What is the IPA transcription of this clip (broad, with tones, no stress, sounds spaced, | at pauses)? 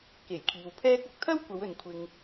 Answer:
k e˨˩ j kʰ iː˨ w pʰ ɛː˥ k̚ ɐ˧ k̚ t̪ʰ ɐ˥ w kʷ ɐ˨˧ w ɵ˨ n kʷʰ ɪ˨ ŋ